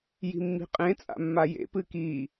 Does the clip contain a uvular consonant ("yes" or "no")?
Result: yes